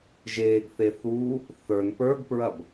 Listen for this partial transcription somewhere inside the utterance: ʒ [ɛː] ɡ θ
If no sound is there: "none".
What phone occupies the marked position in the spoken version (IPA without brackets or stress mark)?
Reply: eː